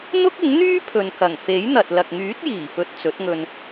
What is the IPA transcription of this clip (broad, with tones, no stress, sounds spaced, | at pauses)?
n̪ ʊ˥ k̚ ɪ˨˥ ŋ n̪ yː˥ pʰ ɵ˨ n k ɐ˨˩ ŋ f e˨˥ j n̪ ɐ˨ t̚ l ɐ˨ k̚ ŋ yː˨˥ t̚ j iː˨˩ p ɵ˨ t̚ t͡s ɵ˨˥ t̚ ŋ ɵ˧ n